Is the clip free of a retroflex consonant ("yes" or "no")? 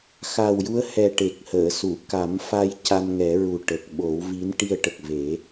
no